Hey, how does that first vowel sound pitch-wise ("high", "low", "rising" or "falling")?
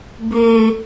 high